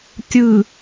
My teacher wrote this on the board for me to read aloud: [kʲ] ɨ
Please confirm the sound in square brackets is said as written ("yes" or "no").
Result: no